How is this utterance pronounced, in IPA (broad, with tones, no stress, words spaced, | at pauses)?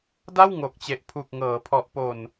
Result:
da˥˩wŋo˨˩k̚t͡ɕe˨˩ʔ pʰu˨˩k̚ŋɤː˩˦pʰɔ˨˩ʔ po˨˩n